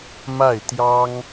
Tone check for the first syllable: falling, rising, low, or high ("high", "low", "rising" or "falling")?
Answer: falling